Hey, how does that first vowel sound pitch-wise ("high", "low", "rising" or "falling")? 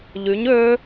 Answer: rising